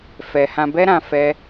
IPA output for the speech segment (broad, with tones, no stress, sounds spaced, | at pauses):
f ɛ˧ h ã˧ b ɛ˦ ɾ ã˧ f ɛ˧